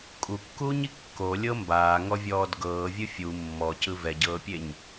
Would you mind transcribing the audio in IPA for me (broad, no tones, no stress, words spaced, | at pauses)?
kʼukːuːɲi kːolʲɤ mbaːŋɔvʲɔːd ɡɤːvʲɯ fʲu mːɔcɯ vɛɟɤːpʲeɲ